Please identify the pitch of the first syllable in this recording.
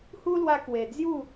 high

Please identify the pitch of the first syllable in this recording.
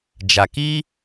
low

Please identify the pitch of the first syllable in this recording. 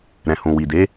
low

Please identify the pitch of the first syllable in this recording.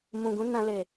low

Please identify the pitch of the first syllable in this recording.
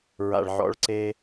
low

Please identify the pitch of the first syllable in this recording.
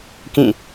falling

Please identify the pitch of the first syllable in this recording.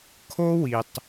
high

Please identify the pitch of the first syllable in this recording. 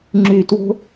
low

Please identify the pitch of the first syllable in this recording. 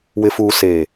low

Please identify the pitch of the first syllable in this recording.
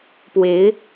rising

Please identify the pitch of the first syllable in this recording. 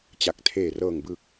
low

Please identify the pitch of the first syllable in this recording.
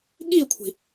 falling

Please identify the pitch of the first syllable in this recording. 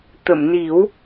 low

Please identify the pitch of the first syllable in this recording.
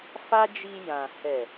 high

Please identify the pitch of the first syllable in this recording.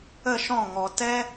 falling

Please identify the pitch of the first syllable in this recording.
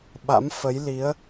rising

